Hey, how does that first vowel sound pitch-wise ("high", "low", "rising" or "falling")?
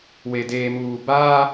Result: low